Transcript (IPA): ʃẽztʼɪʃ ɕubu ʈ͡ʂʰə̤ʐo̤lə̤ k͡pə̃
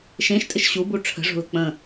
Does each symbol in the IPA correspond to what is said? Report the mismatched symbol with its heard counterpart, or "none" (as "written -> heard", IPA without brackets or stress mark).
z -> ʃ